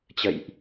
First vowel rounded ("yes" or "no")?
no